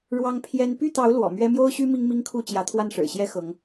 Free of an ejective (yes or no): yes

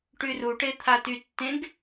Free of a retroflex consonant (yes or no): no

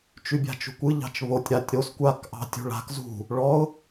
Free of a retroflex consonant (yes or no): no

